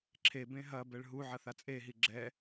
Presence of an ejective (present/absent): present